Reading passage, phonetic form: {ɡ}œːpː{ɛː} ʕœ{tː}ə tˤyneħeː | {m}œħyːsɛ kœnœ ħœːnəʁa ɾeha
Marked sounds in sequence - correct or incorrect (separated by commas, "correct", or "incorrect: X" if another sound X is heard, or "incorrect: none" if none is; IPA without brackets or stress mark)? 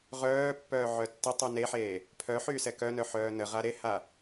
incorrect: ʁ, incorrect: œː, correct, incorrect: pʰ